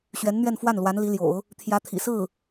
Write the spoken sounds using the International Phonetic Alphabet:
ɕ ɥ ɛ˧˥ n n̪ ɥ ɛ˥˧ n f w a˥˩ n l w a˧˥ n l i˧˥ l j o̰˨˩˦ ʊ̯ | t̪ʰ j ä˧˥ t̪ʰ ḭ˨˩ s ɹ̩˥˩

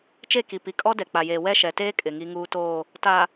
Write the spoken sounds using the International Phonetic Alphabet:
t͡ʃ e˦˨ k i˨ p i˨ kʼ ɔ˦ d ɛ˨ k͡p a˨ j eː˨ w ɛ˦ ʃ ɛ˨ t eː˦ kʼ ɪ˨ ŋ i˦ ŋ uː˦ t oː˦˨ | t a˨

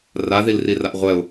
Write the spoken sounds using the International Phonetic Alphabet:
r a ð i l r i r a ʔ ʁʷ ɛ ʊ̯

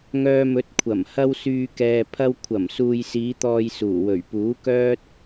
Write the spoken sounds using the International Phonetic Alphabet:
ŋ œː˧ m ɵ˨˥ t̚ kʷʰ ɐ˨˩ m h ɐ˧ w s yː˨ k ɛː˨ pʰ ɐ˧ w kʷʰ ɐ˨˩ m s uː˨ j s iː˨˧ t̪ ɔː˨ j s uː˨˩ w ɵ˨˩ ɥ p uː˨˥ k œː˥ t̚

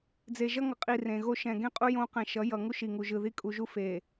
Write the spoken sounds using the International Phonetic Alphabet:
d͡z e˨ ʒ ʌ˦ ŋ ʌ˨ qʼ i˨ r ẽ˨ ɣ o˦ ʃ ɛ̃˨ ɡ ẽ˦ qʼ u˦ j õ˦ q ɛ̃˨ ʃ ʌ˨˦ j ʌ˨ ŋ u˦ ʃ i˨ ŋ u˨ ʒ ɯ˨ ð i˦ kʼ u˨ ʒ u˦ f e˨

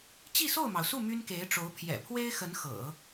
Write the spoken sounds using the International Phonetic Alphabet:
t͡ɕ i˥˧ s o˥˩ ʊ̯ m ɑ˩ ʊ̯ s u˥˩ m y˥ n k e˧˥ ɪ̯ ʈ͡ʂ o˧˥ ʊ̯ pʰ j ɛ̰˨˩ pʰ w e˥ ɪ̯ x ə˧˥ n x ɤ̰˨˩˦

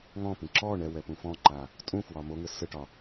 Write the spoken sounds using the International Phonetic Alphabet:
ŋ ɔ̃ p ĩ ǁ ɔ ɳ ɛ w ɛ p ũ f ɔ̃ ǃ a | tʼ ũ f w ɒ m o ŋ ɘ s ɘ ʈ ɒ

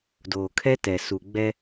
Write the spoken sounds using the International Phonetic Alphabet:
d oː˨ kʰ ɛ˦ t ɛ˨ s u˨ ɡ͡b ɛ˦

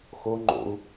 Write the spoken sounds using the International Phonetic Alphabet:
x o ŋ͡ǃ o̰ u̯

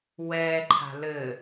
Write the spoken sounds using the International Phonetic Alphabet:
w ɛː ǃʰ a̤ l ɘ

